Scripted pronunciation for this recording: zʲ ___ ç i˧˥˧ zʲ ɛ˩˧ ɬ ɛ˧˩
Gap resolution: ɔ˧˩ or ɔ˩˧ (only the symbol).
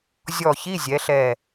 ɔ˧˩